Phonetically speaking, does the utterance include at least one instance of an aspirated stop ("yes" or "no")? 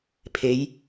yes